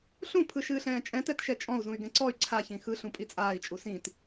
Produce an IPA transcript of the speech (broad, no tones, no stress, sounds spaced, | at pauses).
ɬ ũ pʰ ɯ ʃ ɨː ɬ ɛ̃ː t͡ʃʼ ɛ̃ t ɛ t ʃ ɛ t͡ʃʼ ɔ̃ u̯ z ũ y̯ ɡ ɛ̃ ǀ ɔ y̯ ǀʰ a ç ĩ x ɯ ɬ ũ pʼ i t͡sʼ aː i̯ t͡ʃʼ u s ĩ t